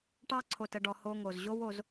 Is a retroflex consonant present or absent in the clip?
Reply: present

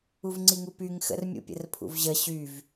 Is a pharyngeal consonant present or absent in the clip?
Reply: absent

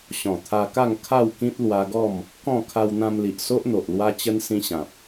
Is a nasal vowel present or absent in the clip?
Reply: present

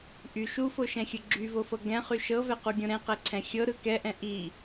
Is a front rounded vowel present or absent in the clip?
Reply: present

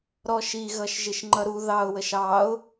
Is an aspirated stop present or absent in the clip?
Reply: absent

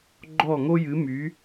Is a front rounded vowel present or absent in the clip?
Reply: present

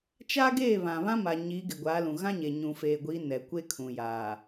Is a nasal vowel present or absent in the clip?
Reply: present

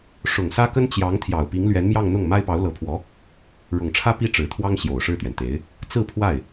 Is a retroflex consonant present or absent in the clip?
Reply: present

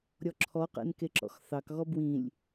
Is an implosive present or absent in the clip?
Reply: absent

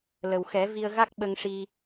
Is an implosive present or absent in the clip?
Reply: present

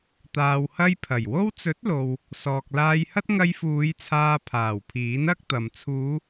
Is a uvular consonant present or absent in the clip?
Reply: absent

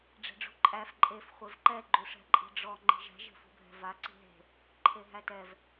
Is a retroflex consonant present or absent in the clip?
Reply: present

